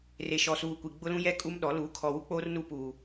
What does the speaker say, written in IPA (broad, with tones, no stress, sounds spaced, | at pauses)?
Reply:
r e˨ ʃ ɔ˨ s uː˨ kʷ i˨ ɡ͡b ʊ˦ l ũ˦ j ɛ˦˨ kʼ u˦ m ɗ ɔ˨˦ l uː˨˦ kʰ ɔ˨ w u˦ k͡p oː˦ r n uː˦ p uː˨